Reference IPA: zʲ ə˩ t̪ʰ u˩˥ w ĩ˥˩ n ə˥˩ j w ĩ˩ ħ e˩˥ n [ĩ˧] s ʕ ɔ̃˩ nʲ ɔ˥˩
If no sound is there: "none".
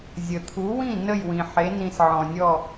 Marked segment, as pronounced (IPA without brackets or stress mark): ĩ˧